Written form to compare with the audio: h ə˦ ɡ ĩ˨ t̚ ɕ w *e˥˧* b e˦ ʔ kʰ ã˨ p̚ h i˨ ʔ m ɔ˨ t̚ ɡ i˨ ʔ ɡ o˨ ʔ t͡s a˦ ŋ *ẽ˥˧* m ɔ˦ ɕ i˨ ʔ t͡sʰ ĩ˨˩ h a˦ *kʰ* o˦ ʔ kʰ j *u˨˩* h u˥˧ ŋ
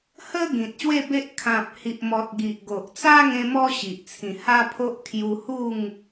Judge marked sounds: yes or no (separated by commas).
yes, no, no, no